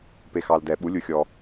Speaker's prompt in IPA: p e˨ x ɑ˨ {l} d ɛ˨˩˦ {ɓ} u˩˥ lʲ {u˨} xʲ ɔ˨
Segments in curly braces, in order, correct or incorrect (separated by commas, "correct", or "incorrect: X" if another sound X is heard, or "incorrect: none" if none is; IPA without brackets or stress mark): correct, correct, correct